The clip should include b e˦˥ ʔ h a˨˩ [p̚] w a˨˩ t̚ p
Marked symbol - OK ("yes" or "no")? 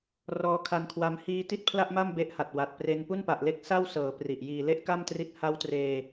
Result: no